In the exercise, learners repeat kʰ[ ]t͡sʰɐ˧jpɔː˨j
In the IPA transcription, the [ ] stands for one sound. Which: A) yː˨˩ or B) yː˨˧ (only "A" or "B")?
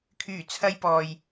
A